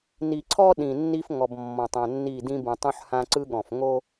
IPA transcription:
ni˨ǀʰɔ˦ ɗĩ˨nːi˦fŋɔ˨b mːɔ̃˨tˤã˨nːi˦˨dĩ˦ bũ˨tˤũ˦ħhã˦ ǀɯ˦ɠɔ̃˨f ŋo˦

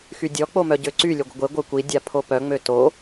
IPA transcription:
xydʲɔ k͡pomœɟøǀy lʲøɡʷəɡʷe ɡʷœkʷi dʲapʰopœ ŋ͡møto

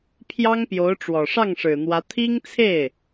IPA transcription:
pʰjɑ˥ŋpjo˧˥ʊ̯ʈ͡ʂwɔ˨˩ ʂɑ˥˩ŋʂɻ̩˨˩n̪wä˧˥ t̪ʰi˥ŋt͡sʰe˥˩ɪ̯

